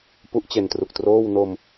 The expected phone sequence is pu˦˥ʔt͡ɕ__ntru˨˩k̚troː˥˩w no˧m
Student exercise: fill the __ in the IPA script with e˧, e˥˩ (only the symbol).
e˧